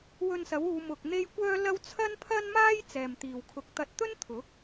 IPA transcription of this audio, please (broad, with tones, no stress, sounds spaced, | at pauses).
w ɵ˧ n s ɐ˨˥ w uː˨˧ m ʊ˧ k̚ n̪ e˥ j kʷ œː˥ l ɐ˥ w t͡sʰ ɐ˥ n pʰ ɐ˥ n m aː˥ j t͡s ɛː˨ m t̪ iː˨ w kʰ ʊ˨˥ k̚ t̪ ɐ˧ t̚ t̪ ɵ˥ n t̪ʰ ʊ˨˥ k̚